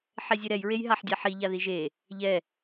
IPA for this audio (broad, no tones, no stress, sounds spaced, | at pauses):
ħ ɛ zʲ e ɾ ɛ j ɹ e j ɦ a ħ dʲ a ħ i ʎ a ð i ʒ e | ʎ ɛ